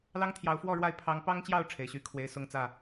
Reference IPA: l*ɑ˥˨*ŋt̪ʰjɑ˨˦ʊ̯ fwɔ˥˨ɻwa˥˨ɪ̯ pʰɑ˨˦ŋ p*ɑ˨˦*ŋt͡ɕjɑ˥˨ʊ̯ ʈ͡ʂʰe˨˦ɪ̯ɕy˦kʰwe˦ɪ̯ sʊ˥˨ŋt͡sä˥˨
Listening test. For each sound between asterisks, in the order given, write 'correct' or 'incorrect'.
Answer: incorrect: ɑ˦, incorrect: ɑ˦

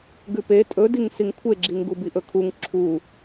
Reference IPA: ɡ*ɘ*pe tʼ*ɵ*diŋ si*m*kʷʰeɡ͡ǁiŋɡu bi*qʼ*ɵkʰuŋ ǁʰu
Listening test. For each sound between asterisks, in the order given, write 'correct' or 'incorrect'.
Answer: incorrect: ʉ, correct, incorrect: ŋ, incorrect: ʔ

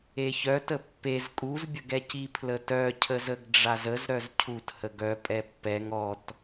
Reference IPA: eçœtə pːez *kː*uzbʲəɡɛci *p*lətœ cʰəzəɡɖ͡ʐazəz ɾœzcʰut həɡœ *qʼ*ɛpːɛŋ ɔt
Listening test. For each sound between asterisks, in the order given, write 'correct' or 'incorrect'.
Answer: incorrect: kʼ, incorrect: pʰ, incorrect: pʼ

